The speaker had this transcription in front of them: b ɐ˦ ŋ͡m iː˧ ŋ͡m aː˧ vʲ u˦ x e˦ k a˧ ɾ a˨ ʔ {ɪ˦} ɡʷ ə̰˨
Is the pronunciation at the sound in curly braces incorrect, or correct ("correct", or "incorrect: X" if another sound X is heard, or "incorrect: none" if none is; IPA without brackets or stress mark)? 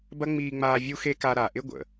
correct